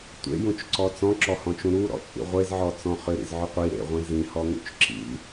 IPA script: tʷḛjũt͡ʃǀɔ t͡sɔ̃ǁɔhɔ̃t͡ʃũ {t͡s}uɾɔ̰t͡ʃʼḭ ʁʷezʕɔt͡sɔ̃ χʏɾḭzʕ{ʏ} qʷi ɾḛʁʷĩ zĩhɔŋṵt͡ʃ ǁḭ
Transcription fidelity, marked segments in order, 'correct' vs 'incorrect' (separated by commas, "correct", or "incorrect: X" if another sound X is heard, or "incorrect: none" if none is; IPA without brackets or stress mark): incorrect: ɾ, correct